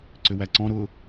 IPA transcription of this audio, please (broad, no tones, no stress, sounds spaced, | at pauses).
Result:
ǀ ʏ w æ ǀ ɔ̃ ɾ ʊ